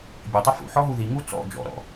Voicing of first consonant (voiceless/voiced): voiced